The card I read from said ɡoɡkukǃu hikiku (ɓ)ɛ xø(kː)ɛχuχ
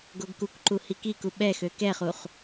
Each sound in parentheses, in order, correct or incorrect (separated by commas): correct, incorrect